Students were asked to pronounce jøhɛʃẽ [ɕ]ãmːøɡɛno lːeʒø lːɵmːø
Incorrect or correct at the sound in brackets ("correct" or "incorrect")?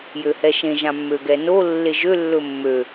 incorrect